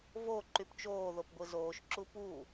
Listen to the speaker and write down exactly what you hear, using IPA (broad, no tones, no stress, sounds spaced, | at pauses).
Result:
v o ǃ y p t͡ʃ oː ð o p ɡʷ ɯ z oː ʃ ǁ u p u